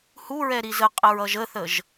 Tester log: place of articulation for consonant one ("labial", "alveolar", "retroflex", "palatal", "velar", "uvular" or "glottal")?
glottal